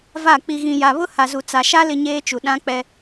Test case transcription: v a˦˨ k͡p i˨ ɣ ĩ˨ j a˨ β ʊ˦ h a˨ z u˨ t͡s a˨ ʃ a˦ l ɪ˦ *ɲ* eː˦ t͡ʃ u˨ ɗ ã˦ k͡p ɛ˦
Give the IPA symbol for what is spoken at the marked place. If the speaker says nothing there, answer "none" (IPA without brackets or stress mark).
ɲ